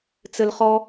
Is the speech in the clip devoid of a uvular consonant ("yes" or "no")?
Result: no